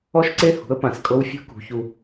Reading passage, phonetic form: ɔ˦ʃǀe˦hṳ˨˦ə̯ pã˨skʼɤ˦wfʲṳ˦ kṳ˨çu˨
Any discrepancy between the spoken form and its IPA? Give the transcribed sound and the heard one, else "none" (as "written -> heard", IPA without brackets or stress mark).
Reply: none